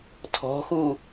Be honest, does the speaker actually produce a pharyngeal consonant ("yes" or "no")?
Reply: no